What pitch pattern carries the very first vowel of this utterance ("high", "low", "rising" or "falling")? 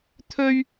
high